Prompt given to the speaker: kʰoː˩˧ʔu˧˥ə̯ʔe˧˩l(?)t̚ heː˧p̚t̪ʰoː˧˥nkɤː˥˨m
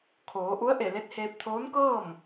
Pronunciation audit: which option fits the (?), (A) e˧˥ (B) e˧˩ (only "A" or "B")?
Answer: A